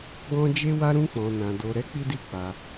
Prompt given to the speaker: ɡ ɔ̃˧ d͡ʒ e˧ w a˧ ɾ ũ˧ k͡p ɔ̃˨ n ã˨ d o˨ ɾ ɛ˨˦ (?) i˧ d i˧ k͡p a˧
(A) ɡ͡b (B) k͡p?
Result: B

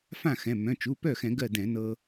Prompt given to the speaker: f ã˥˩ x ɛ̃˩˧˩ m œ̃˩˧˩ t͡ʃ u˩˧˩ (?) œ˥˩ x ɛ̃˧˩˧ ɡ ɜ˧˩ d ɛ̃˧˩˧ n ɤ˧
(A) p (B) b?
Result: A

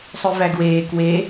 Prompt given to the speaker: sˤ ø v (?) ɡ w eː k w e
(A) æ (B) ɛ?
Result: A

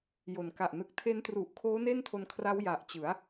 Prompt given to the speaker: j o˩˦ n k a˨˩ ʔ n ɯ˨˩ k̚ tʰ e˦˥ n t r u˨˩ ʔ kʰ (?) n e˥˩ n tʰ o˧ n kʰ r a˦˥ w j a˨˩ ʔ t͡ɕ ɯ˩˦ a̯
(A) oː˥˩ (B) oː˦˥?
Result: B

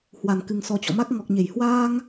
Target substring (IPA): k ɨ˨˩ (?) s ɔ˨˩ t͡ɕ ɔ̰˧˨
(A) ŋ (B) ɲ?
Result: A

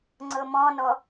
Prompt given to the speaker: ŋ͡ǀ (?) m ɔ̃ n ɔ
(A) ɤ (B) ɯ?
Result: A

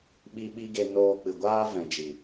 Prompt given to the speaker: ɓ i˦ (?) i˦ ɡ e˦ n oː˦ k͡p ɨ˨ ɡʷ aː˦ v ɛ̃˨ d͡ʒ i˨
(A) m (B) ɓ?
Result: B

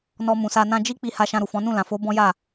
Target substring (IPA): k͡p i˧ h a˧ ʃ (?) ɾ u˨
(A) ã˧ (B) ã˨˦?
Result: A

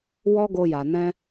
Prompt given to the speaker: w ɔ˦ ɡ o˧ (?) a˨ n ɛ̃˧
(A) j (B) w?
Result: A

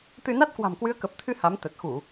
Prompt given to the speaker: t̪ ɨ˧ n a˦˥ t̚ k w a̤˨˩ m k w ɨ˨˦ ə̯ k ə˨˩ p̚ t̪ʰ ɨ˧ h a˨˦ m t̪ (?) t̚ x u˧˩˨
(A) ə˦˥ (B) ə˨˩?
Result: B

